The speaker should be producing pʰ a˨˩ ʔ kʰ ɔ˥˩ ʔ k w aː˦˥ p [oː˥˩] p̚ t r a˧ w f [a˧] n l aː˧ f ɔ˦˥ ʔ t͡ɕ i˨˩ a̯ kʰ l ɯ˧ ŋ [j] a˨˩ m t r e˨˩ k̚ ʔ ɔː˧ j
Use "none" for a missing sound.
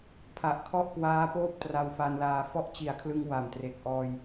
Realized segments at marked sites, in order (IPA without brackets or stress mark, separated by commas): oː˥˩, a˧, w